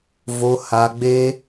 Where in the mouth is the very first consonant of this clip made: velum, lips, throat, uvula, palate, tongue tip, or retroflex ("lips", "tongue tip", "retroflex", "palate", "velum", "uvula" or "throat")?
lips